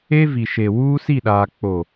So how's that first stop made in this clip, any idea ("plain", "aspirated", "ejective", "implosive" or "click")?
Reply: implosive